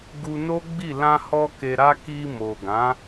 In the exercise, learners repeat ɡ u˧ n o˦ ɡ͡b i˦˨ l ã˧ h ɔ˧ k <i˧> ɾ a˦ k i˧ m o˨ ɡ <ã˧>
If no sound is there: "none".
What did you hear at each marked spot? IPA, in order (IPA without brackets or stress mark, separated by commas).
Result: e˧, ã˨˦